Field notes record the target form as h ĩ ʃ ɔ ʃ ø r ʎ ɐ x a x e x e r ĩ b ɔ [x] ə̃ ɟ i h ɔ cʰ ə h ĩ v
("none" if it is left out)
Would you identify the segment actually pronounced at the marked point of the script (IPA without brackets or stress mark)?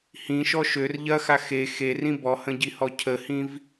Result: h